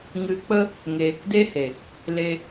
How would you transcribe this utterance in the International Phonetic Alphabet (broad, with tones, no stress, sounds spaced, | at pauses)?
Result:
ŋ ɨ˨ k͡p ə˧ | ŋ eː˨ k d e˦ h e˨ | l e˧